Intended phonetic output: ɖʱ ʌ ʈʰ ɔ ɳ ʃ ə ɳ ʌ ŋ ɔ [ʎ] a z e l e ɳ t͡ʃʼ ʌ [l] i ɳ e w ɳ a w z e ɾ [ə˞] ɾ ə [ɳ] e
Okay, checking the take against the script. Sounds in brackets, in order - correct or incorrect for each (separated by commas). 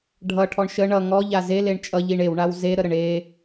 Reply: correct, incorrect, incorrect, correct